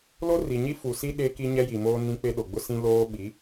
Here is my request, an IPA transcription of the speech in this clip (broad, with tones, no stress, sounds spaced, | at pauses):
l o˦ r i˨ ɲ i˦ f u˨ s i˦ ɗ e˦ k i˦ ɲ ɛ˦ j i˨ m oː˦ n ĩ˦ k͡p e˦ ɗ o˨ ɡ͡b ʊ˦ s ĩ˦ l oː˦ ɓ i˨˦